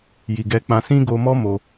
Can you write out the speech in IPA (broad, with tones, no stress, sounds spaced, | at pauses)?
j i˨ ɡ ɛ˧ k͡p ã˧ s ĩ˦ ɡ o˧ m ɔ˦ m o˧